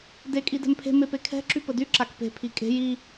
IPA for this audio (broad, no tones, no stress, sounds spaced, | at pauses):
d e kʼ i d ɛ̤ m pʰ e̤ m e p e kʰ ɛ̤ ǁ y p ə d y ǁ a k p e̤ pʰ i kʼ e̤ j i